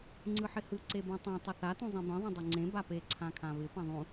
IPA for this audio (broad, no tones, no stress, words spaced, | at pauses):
ŋ͡ǀɯħɪhɯ ǀebũtˤã tˤʏθa tũzˤĩbĩ ðˤũdˤuŋ͡ǀẽ bape ǀʰãkʰãβɪ pãðˤũ